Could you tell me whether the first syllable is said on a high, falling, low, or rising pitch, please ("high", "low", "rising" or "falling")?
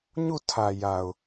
falling